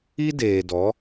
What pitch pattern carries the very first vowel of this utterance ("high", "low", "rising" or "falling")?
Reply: high